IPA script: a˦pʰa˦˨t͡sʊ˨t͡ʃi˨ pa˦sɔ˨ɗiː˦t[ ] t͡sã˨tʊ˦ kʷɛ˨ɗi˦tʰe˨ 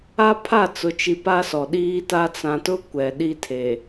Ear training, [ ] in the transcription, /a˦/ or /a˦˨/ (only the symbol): a˦